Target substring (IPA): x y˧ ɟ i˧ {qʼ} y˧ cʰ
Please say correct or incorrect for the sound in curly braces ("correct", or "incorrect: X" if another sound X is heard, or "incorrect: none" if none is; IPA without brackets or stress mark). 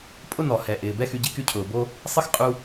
incorrect: k